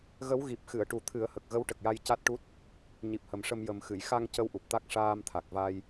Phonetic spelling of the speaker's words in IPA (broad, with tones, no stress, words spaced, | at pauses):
ɣə˧˥w ɣi˨˩p̚xɨ˨˩˨ə̯ʈu˨˩ t̪ʰɨ˨˩˦ə̯hə˨˩k̚ ɣə˧˥wʈə˨˩k̚ja˧j ca˦˥t̚ʈu˦˥t̚ | ɲi˨˩p̚hə˨˩mʂə˧m jə˨˩mxɨ˨˩˨j xa˧ŋ cə˧wʔu˨˩p̚t̪a˦˥k̚ ʂaː˧mt̪ʰa˨˩k̚va˧j